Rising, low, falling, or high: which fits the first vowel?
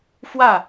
falling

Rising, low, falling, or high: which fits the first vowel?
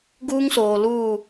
high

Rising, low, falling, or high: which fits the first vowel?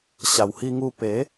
low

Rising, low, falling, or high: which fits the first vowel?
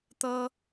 high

